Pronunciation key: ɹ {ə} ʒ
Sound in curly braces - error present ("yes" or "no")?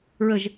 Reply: no